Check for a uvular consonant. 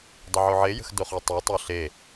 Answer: present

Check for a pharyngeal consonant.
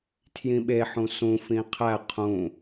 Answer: present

